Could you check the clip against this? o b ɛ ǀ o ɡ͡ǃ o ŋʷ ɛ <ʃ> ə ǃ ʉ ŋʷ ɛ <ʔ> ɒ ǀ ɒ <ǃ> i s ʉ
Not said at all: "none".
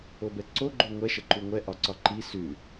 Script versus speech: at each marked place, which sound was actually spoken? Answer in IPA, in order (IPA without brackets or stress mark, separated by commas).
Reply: ʃ, ʔ, ǃ